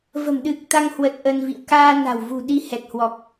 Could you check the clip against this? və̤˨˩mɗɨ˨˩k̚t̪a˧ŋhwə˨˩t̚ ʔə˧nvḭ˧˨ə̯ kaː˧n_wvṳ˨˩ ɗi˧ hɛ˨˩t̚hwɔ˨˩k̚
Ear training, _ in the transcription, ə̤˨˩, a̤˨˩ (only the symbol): a̤˨˩